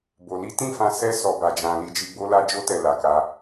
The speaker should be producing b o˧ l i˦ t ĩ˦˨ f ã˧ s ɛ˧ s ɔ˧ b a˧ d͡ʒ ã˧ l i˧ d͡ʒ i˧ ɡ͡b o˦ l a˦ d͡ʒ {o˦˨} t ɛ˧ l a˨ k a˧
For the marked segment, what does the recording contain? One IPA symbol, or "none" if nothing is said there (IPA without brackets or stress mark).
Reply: o˦